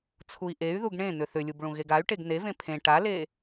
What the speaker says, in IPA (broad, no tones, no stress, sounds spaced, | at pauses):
t͡sʰ u i̯ ʔ e y̯ ð u ɡ ɳ ẽ n̪ ʏ θ ʏ lʲ u b ɭ ũ ɣ e ɡ a y̯ ʈ e ɡ n̪ e v ẽ pʰ ẽ ʈ a l e